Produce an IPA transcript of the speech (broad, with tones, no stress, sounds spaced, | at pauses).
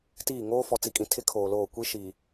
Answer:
t iː˦˨ ŋ oː˦ f ɔ˨ t͡s i˨ kʼ ĩ˨ tʰ ɪ˦ kʰ oː˨ l oː˦˨ kʷ i˦ ʃ iː˨